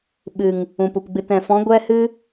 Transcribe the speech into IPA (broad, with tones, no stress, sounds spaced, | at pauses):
ɓ ɨ˨ ŋ | ũ˨ p u˨ p ɡ͡b ɨ˨ t ɛ̃˨ f ɔ̃˨˦ ɡʷ ɛ˦ h ɨ˦